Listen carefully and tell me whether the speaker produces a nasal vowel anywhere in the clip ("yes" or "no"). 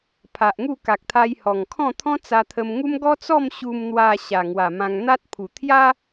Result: yes